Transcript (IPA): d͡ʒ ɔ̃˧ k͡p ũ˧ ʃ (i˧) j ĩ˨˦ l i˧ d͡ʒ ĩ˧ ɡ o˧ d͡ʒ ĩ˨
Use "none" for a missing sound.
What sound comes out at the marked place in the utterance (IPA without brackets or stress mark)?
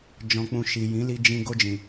i˨